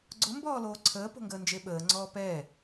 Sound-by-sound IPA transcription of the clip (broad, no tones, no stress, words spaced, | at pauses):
ɡ͡ǀʊ mbɔːloːǀʰəː po̤ŋɡəːnd͡ʒeɓəː ŋ͡ǀɔːpɛ